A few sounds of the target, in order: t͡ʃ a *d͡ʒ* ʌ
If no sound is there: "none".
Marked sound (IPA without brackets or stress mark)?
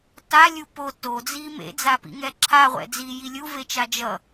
d͡ʒ